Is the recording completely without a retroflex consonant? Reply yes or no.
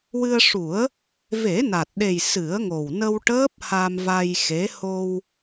no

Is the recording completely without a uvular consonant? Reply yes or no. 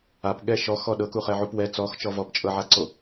no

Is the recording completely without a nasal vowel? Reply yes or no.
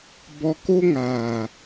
yes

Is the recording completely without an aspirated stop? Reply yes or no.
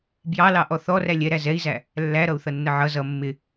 yes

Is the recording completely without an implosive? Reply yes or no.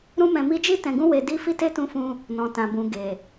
yes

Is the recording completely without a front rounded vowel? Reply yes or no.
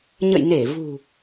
yes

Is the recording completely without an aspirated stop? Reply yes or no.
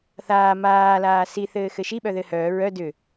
yes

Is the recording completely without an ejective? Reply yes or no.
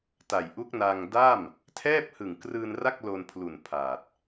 yes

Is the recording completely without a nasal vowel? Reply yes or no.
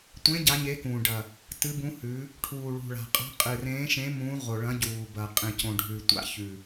no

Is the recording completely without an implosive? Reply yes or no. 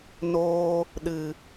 no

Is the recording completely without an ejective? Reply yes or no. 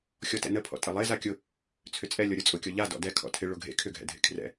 no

